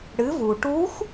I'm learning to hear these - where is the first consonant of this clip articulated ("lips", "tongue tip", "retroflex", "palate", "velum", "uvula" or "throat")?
retroflex